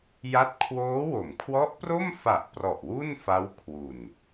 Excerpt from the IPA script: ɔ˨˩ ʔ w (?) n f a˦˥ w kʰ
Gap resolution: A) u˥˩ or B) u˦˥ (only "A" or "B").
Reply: A